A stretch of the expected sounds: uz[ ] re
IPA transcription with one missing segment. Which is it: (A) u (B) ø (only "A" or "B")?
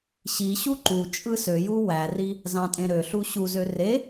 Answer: B